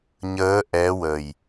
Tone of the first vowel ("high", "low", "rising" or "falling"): rising